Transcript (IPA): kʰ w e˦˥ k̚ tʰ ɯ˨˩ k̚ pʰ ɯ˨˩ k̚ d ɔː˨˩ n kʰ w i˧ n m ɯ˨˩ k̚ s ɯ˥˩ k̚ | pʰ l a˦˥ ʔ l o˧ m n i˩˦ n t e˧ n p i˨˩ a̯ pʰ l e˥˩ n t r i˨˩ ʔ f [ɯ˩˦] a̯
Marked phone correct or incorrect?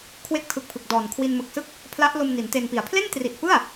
incorrect